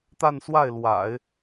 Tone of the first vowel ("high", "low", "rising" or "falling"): falling